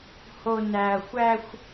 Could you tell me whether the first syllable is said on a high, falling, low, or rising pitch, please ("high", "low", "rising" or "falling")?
low